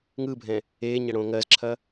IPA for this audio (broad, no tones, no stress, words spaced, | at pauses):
ŋɯbʱɛ̃ | eːɲɐɽõː ŋɜzǁʰɐ